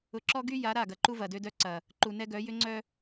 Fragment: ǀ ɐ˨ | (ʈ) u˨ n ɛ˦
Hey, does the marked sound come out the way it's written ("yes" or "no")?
no